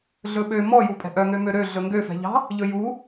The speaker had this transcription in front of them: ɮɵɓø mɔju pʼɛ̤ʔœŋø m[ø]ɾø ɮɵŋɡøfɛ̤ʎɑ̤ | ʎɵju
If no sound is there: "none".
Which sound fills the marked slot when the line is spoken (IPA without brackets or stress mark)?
ø